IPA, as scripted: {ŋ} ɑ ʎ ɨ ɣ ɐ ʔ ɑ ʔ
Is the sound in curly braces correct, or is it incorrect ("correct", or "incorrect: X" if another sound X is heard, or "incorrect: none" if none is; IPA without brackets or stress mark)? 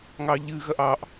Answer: correct